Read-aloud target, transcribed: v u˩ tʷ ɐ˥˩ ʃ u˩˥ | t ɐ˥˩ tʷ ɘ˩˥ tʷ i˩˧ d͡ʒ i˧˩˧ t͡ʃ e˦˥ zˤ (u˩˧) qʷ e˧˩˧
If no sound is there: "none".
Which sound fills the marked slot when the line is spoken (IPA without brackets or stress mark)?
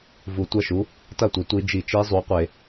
u˩˧